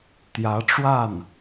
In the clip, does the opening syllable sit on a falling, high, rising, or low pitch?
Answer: rising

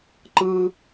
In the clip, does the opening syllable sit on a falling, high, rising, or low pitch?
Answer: high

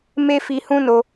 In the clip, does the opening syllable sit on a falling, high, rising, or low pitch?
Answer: high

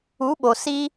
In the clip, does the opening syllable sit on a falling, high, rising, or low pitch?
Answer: rising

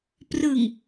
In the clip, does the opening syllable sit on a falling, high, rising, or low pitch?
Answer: low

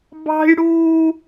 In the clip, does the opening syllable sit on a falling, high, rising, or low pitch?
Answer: high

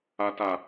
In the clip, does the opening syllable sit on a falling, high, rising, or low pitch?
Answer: low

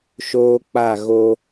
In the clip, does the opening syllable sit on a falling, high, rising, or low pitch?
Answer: high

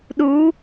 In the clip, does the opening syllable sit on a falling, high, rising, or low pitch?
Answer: rising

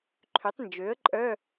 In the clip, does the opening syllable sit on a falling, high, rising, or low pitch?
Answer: rising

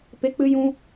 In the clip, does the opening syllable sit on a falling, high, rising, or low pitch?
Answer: high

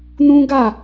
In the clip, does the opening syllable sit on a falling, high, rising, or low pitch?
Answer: high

